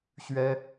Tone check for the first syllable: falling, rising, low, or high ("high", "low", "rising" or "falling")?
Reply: high